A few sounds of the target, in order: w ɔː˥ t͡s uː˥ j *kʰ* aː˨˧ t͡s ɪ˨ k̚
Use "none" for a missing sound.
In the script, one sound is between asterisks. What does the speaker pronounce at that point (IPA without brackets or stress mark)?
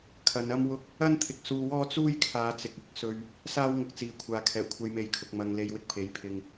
kʰ